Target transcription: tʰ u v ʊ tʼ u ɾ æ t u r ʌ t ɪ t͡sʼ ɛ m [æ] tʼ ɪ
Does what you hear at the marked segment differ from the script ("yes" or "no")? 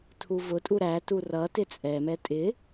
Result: yes